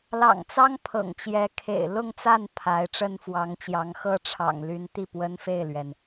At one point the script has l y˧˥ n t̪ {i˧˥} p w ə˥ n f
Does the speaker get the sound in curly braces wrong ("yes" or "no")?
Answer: yes